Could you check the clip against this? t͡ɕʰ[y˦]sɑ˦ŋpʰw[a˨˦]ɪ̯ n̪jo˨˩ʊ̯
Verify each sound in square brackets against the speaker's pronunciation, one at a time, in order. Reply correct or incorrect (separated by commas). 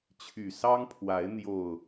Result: incorrect, correct